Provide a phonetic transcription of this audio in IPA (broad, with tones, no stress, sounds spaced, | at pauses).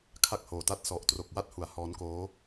kʰ a˥˩ k̚ h oː˨˩ t a˥˩ t̚ s ɔ˨˩ ʔ t r o˨˩ k̚ w a˥˩ t̚ h u˩˦ a̯ h ɔː˦˥ n k oː˦˥